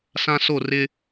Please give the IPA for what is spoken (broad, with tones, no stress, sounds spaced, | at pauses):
s ã˦ s o˦˨ r ɪ˦